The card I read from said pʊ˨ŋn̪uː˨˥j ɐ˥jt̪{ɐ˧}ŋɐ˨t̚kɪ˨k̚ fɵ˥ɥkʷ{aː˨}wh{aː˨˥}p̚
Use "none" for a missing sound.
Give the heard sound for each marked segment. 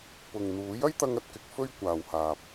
ɐ˧, aː˨, aː˨

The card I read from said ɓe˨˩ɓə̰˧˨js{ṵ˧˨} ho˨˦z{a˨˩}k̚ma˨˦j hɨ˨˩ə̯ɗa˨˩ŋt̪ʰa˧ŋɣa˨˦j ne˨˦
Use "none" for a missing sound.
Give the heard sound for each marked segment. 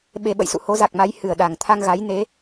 ṵ˧˨, a˨˩

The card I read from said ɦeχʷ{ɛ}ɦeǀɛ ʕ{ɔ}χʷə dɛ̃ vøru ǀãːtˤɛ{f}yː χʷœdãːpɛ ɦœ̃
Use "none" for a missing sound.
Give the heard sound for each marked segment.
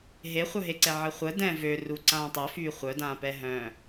œ, ə, f

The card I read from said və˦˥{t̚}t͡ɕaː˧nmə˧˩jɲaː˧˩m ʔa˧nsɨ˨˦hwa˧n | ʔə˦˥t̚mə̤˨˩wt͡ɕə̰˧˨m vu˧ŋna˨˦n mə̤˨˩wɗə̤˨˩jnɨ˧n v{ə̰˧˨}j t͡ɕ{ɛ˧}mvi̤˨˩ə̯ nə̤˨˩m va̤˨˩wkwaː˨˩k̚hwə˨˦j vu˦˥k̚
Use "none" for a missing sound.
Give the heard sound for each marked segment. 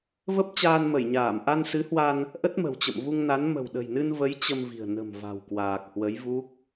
p̚, ə˨˦, ə˧

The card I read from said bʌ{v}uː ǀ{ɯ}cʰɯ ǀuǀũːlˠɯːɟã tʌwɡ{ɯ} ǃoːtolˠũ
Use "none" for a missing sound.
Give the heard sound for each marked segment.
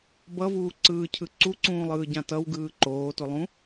v, ɯː, ɯː

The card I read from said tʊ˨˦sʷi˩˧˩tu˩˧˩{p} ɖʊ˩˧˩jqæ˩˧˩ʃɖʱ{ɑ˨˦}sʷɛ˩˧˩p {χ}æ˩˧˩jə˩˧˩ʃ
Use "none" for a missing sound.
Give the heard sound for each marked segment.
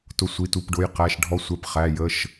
p, ɔ˨˦, χ

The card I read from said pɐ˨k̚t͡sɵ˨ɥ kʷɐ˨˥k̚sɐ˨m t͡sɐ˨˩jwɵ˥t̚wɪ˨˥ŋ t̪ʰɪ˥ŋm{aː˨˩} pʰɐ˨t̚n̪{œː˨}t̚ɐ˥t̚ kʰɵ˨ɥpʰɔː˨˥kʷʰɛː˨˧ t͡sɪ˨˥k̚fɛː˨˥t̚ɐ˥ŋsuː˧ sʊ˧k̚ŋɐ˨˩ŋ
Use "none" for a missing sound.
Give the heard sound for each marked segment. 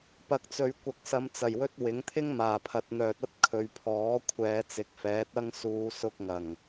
aː˨˩, œː˨

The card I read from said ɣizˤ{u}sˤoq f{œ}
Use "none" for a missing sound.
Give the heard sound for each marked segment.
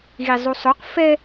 u, ɛ

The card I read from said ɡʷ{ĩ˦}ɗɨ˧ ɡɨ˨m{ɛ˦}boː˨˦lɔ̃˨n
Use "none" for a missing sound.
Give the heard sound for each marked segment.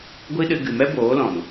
i˦, ɛ˦

